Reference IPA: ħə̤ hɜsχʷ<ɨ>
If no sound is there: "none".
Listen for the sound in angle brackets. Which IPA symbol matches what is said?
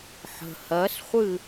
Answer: ɨ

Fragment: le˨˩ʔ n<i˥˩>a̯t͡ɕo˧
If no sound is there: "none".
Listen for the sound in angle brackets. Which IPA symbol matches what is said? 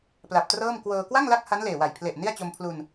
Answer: i˥˩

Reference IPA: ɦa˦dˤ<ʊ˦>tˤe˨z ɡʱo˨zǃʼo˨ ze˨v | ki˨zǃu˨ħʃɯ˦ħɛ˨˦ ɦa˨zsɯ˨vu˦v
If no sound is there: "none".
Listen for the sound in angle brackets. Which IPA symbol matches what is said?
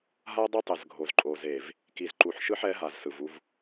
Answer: ʊ˦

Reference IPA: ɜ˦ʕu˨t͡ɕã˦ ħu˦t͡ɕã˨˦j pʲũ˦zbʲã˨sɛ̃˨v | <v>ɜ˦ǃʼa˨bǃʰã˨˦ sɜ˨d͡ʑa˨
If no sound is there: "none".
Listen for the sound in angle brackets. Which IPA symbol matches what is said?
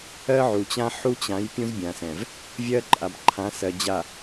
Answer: vʲ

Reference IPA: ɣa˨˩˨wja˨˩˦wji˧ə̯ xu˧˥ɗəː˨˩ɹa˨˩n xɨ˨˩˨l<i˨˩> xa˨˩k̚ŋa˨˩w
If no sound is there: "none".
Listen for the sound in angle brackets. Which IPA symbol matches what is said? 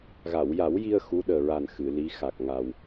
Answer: i˧˥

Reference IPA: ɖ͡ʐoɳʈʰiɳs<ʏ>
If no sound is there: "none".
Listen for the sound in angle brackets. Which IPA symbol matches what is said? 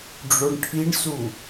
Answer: u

